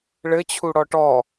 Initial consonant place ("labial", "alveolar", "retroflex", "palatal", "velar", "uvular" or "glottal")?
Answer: retroflex